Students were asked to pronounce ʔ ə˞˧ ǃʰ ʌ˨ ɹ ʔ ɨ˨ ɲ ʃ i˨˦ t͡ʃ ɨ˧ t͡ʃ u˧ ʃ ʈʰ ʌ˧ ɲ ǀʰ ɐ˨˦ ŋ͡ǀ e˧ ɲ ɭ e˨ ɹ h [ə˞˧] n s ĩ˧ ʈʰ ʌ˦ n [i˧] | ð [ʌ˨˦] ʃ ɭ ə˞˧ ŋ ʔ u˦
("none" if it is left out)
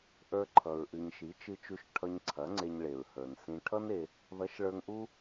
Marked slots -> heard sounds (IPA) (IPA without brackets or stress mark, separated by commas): ə˞˨, e˧, ʌ˨˦